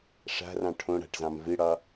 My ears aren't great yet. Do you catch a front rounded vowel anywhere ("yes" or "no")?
no